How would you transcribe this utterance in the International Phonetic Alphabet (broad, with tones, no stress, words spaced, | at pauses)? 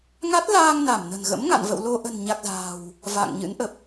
ŋa˦˥t̚laː˧ŋ na˧˩mnə̤˨˩n ɣə̰˧˥mŋa̰˧˨n və̰˧˨w lo˧ ʔə̤˨˩nɲa˨˩k̚ za̤ː˨˩w | va̰˧˨ŋɲɨ̰˧˥nʔə˨˩p̚